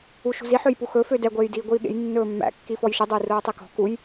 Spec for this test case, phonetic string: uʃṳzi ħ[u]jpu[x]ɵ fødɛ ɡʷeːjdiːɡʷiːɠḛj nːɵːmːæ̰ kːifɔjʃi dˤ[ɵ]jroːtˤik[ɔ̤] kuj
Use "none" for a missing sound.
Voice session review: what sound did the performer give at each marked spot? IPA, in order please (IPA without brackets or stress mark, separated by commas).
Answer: ø, x, o, ɔ̤